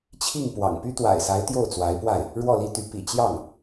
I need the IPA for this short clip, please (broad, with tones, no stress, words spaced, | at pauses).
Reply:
t͡ɕʰi˥˩ŋ pwɑ̰˨˩ŋpy˥ t̪wa̰˨˩ɪ̯sa˧˥ɪ̯ t̪jo˥˩ʊ̯t͡swa˧˥ɪ̯pwa˥˩ɪ̯ | ɻwɔ˥˩li˥t̪y˧˥ pḭ˨˩t͡ɕjɑ˥˩ŋ